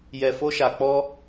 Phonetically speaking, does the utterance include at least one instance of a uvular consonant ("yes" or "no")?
no